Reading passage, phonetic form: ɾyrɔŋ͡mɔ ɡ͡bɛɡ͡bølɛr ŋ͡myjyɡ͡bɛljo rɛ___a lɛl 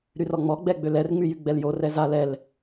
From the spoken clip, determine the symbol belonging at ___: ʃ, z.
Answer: z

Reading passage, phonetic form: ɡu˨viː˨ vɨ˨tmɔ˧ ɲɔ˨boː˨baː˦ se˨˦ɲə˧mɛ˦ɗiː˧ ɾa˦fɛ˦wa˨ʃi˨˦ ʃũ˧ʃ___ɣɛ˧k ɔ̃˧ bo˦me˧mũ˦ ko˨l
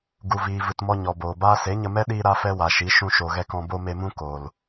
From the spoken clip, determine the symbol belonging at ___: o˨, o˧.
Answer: o˨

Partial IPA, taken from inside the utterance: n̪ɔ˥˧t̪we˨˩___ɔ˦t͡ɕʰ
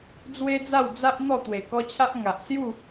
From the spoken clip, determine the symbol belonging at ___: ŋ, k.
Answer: k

